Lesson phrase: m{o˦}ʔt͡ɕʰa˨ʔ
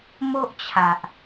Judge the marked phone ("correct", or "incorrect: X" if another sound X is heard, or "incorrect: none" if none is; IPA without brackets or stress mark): correct